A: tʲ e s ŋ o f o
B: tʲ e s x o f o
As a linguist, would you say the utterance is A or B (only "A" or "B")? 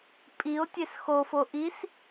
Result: B